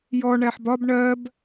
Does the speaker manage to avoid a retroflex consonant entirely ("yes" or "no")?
no